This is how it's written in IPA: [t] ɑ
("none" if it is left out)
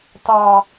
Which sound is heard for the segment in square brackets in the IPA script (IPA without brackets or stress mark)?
t